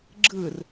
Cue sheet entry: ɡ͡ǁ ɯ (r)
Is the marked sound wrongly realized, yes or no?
no